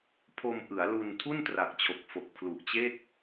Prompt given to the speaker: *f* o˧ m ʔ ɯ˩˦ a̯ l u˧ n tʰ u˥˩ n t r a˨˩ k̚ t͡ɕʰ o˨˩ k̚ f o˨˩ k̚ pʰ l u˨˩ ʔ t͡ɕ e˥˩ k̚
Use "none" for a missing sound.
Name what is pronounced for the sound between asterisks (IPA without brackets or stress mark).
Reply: pʰ